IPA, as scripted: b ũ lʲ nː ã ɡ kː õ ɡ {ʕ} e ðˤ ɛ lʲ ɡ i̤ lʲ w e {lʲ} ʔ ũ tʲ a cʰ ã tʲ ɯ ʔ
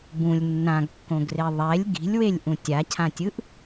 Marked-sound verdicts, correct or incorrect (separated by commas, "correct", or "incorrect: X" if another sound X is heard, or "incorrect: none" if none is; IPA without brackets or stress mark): incorrect: r, correct